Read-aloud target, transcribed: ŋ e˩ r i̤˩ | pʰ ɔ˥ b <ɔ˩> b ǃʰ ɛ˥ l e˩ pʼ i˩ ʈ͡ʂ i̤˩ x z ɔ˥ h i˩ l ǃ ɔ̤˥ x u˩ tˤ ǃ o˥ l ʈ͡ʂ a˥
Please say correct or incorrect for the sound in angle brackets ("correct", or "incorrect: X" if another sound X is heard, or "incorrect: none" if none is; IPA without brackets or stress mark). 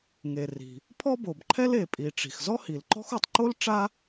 incorrect: o˩